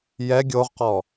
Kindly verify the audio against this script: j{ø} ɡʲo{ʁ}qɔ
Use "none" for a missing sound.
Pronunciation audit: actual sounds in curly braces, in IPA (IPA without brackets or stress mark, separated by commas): ɛ, ʁ